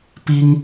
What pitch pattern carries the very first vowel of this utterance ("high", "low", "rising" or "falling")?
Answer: high